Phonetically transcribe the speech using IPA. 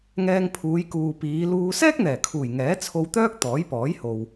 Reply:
ŋɛː˧ŋpʰuː˨˧jkuː˨ piː˨˧luː˧ sɛː˥k̚n̪ɛː˨˩kʰuː˨˩j ŋɛː˨˥t͡sʰo˧wt̪œː˥k̚ t̪ɔː˨˥jpɔː˨˥jho˨w

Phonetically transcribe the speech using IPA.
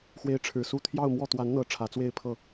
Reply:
xwe˧˥ɪ̯ ʈ͡ʂʰɻ̩˨˩ su˥˧ t̪ʰjɑ˥˧ʊ̯mwɔ˥˩ t̪wa˧˥nn̪ɤ˨˩ ʈ͡ʂʰä˧˥t͡swe˥˧ɪ̯pʰɤ˥˩

